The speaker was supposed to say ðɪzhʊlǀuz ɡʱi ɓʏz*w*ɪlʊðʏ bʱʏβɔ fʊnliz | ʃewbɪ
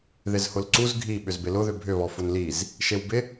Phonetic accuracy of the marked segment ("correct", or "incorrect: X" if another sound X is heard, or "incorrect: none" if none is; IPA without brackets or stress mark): incorrect: b